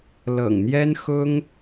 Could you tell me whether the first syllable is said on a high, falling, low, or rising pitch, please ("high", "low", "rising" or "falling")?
low